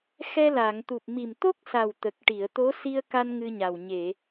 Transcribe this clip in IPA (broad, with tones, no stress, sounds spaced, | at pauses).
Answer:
x ɛ˧ l a˨˩˨ ŋ t̪ u˨˩ p̚ m i˨˩ m t̪ o˦˥ k̚ s a˨˩ w t̪ ə˨˩ k̚ ʈ i˨˩˨ ə̯ t̪ o˧˥ s i˧ ə̯ k a˧ n ŋ ɨ˧ ɲ a˨˩ w ɲ e˨˩˨